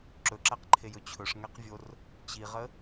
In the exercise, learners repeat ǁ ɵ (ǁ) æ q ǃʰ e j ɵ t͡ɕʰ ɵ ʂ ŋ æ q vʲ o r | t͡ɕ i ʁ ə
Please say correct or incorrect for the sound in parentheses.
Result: correct